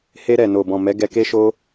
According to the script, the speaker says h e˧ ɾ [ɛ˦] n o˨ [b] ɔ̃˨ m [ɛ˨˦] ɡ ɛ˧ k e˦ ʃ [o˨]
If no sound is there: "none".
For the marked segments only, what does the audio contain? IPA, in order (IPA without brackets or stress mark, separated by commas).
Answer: ɛ˨, b, ɛ˨˦, o˦